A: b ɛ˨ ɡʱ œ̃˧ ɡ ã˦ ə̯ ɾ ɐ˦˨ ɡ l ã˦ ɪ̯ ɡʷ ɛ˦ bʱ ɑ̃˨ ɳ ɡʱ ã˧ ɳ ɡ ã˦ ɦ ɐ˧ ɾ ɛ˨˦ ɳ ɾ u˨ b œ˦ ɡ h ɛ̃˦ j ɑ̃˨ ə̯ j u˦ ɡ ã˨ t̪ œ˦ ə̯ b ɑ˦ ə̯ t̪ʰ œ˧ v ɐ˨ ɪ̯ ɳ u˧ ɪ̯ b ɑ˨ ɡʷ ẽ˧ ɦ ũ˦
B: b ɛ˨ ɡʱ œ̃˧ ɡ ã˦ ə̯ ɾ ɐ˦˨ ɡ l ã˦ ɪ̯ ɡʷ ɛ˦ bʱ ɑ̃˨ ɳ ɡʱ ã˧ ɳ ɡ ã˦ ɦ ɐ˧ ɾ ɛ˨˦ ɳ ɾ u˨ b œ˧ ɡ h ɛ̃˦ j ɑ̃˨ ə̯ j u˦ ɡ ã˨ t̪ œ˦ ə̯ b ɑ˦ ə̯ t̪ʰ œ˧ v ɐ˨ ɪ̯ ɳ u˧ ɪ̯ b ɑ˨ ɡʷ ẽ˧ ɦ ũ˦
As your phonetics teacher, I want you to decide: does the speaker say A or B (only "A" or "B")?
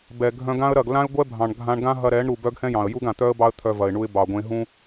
A